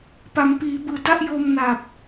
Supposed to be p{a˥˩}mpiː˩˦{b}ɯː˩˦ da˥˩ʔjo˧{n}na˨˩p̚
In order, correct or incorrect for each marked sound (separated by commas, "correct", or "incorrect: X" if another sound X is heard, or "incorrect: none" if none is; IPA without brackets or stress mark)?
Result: incorrect: a˩˦, correct, incorrect: m